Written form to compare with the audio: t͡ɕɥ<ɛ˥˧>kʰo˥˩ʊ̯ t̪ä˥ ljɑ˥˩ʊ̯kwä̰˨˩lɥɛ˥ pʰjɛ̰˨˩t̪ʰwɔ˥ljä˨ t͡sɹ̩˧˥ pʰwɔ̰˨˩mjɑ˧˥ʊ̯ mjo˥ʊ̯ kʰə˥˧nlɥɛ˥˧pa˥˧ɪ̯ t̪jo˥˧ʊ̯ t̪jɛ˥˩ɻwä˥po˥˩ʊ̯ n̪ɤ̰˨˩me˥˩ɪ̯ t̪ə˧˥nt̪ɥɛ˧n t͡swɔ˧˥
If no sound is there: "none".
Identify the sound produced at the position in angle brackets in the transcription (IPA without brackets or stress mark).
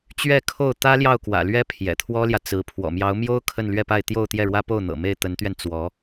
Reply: ɛ˥˧